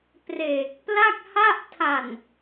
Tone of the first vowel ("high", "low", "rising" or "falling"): low